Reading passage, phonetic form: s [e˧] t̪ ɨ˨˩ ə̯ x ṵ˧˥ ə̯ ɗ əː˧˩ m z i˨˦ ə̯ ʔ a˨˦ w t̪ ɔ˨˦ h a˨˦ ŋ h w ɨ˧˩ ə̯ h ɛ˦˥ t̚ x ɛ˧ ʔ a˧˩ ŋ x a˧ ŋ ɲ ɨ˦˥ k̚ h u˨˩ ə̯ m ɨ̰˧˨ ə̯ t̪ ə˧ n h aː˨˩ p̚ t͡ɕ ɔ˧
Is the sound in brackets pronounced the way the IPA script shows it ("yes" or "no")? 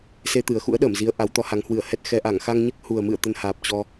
yes